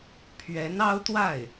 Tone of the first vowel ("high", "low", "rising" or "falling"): rising